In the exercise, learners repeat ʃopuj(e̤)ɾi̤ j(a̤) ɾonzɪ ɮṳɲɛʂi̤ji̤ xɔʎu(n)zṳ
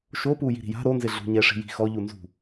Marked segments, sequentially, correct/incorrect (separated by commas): incorrect, correct, correct